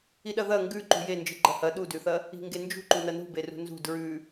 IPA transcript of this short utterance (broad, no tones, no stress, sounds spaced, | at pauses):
i ɗ ɐ ð ɐ ŋ ɡ ʉ ǃ ṳ j e n d͡ʒ ɨ ɡ͡ǃ ɐ h ɐ ɗ u d ʉ θ ɐ | i̤ ŋ ɡ e n d͡ʒ ṳ ǃ u n ɐ n ṳ b e r ṳ n z ṳ d ɹ ʉ